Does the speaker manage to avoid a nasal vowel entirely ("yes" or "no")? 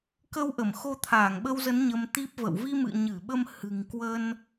yes